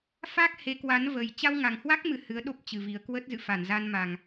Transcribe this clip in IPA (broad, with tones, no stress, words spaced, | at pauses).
fa˦˥k̚ he˨˦kwa˨˦n və˨˩j t͡ɕa˧wŋa˨˩ŋhwa˦˥k̚ mɨ˧hɨ˨˦ə̯ ɗo˦˥p̚t͡ɕɨ˨˩ vi˨˩ə̯kwə˦˥t̚zɨ̰˧˨fa˧˩n za˧nma˨˩ŋ